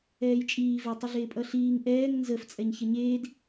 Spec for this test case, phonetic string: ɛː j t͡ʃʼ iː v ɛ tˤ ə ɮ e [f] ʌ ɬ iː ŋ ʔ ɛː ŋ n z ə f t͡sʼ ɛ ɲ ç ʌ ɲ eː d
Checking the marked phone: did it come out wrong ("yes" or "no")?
yes